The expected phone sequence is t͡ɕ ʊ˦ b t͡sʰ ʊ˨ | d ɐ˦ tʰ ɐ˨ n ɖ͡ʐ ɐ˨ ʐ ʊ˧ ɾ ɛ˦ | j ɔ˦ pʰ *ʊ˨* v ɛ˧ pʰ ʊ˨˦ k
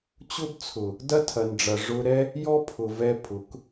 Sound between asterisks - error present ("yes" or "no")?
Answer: no